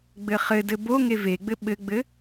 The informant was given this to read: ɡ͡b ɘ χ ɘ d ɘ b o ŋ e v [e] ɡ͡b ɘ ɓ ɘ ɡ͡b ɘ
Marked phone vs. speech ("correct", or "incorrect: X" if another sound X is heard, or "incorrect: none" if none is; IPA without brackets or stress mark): correct